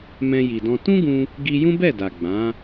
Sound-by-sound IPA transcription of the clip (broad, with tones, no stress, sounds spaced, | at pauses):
m ɛ̃˧ j i˨ d ɔ̃˧ t ũ˦ ɡ ũ˧ | ɡ i˧ j ũ˦ b ɛ˦˨ d a˨ ɡ͡b ã˨˦